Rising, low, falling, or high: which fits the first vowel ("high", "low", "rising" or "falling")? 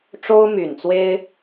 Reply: high